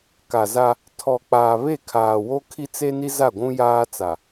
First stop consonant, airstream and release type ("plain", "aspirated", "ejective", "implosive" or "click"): plain